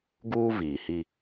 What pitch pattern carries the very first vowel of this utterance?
high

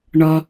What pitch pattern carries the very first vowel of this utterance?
low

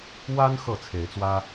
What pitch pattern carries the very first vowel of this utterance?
high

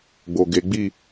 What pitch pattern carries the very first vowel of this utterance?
low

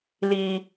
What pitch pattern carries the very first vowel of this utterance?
low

